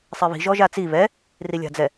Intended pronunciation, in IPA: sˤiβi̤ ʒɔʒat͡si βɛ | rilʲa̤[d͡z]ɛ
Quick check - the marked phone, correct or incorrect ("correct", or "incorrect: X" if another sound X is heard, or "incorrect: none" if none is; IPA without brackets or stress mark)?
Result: correct